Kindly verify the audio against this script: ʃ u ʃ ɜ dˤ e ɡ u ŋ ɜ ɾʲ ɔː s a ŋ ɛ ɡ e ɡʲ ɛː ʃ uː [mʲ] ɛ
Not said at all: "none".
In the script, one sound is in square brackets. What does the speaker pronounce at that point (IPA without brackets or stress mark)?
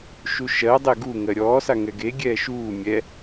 mʲ